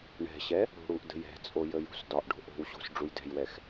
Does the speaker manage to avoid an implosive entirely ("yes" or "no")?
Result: yes